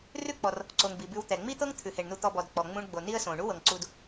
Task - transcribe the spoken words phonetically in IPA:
r ʉ˥ k͡p ɔ˩ r | ǀ o˩ ŋ b i˩ b ʉ˨ w t̪ ɛ˩ ŋ͡m i˥ t̪ ɤ˥ ŋ t̪ʰ ʉ˩ h e˩ ɳ n u˨ t̪ ɔ˨ b ɔ˩ d k͡p ɔ˩ ŋ͡m ũ˨ ɳ ɡ͡b o˩ n i˦ ə̯ s õ˩ ɳ u˥ w ɤ˩ ŋ ǀ u˨ d

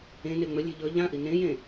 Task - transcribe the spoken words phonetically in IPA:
ẽ n e ŋ͡m ɵ lʲ e̤ ʎ ɵ ʎ ã ʔ i n ẽ j ẽ

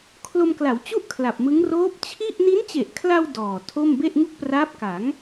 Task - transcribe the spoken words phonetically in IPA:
kʰ l o˧ m k l a˩˦ w t͡ɕ u˥˩ ʔ kʰ l a˨˩ p̚ m ɯ˦˥ ŋ r oː˦˥ p̚ t͡ɕʰ i˥˩ ʔ n i˦˥ n t͡ɕ e˨˩ ʔ kʰ l a˧ w d ɔː˨˩ tʰ o˥˩ m b e˥˩ ʔ ŋ u˥˩ k̚ p r aː˦˥ p̚ k a˩˦ ŋ

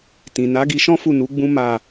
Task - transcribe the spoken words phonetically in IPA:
t ĩ˨ n a˨˦ ɡ i˧ ʃ ɔ̃˦ f u˦˨ n u˨˦ ɡ͡b ũ˦ m a˦˨

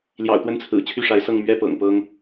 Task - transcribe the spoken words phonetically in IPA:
l j ɑ̰˨˩ ʊ̯ t̪ w ə˥˩ n t͡sʰ ɹ̩˨˩ t͡ɕʰ y˥˩ ʂ a˧˥ ɪ̯ s ɤ˥˩ ŋ m ɥ ɛ˥ p ɤ̰˨˩ ŋ p ɤ˥ ŋ

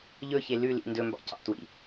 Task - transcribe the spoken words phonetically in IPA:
ʎ ɵ ç e l ʉ l ḭ n d ɵ m b ɑ̰ c ɑ̰ t w ḭ

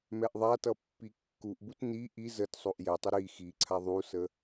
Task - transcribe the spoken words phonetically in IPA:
m ɛ ʔ ðˤ a t ʌ pː i kː u ʔ b u t n i ʔ i z ə t sˤ o ʔ j ɛ tˤ ə ɾ i x i ǀʰ a ðˤ u s ə

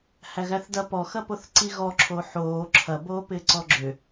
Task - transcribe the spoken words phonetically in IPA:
h æ ɣ æ θ d ɐ p ɔ x ɐ p o θ ǀ i ɣ ɔ ǁʰ o ħ oː ǁʰ ɐ b oː p ɪː ǀ ɔ ɡ͡ǁ ʏ

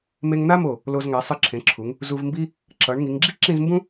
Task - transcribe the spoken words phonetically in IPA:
m e˧ ŋ n̪ a˥ m o˧˩ | l o˧ z ŋ a˩˧ sˤ ɯ˧ ǁʰ ẽ˩˧ ǁʰ u˩˧ ŋ | z u˧ v m b i˥ | ǁ ʌ˩˧ ɳ ŋ i˩˧ ŋ ɡ͡ǁ i˥ ǁ ĩ˥˧ z m b ũ˥

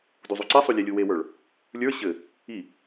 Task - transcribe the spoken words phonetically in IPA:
d u zˤ u ǀ i sˤ u lʲ ɛ lʲ u w e w ə˞ ɭ | lʲ ə˞ ɕ ɘ | i

